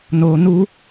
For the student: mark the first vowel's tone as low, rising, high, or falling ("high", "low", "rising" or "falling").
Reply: low